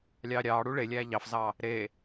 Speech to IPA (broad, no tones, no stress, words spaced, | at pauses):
lʲɑːɾʲɑː ɽuɭelʲæː ʎɑfzɑː | ɾeː